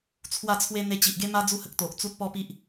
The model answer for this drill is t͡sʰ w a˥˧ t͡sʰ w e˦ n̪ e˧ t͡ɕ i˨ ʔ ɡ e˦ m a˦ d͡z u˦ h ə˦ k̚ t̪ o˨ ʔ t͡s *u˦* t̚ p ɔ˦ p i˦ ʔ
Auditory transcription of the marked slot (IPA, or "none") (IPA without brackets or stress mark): u˦